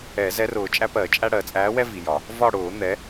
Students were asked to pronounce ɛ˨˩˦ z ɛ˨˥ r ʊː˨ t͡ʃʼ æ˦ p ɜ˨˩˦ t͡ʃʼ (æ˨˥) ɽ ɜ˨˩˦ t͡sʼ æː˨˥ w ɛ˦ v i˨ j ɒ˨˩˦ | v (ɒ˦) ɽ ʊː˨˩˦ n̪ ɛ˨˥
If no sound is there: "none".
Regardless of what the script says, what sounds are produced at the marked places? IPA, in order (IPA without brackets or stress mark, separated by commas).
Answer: æ˦, ɒ˦˨